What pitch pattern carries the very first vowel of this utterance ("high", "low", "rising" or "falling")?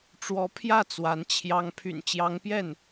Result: rising